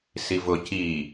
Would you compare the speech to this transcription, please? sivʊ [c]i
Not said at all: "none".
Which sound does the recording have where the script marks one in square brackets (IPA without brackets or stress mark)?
c